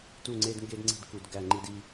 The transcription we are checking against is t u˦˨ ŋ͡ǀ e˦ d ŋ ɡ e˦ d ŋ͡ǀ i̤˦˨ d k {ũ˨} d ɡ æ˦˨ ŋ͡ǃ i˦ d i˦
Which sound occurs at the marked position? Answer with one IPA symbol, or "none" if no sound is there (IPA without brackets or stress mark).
u˨